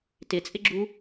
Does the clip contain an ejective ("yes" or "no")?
yes